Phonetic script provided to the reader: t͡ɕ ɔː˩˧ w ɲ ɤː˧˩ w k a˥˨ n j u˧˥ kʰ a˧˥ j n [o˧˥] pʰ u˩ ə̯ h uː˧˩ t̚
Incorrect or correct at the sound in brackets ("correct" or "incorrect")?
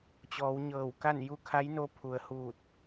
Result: correct